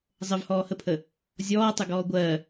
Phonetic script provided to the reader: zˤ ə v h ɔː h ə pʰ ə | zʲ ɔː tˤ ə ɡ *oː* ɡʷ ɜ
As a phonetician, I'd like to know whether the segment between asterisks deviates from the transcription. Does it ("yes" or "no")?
yes